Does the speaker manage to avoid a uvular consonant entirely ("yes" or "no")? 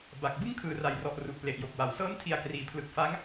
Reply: yes